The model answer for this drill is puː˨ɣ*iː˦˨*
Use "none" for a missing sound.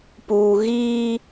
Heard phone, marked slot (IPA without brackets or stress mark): iː˦